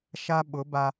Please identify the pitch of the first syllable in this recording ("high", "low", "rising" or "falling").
high